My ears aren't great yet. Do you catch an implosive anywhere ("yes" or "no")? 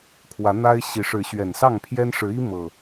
no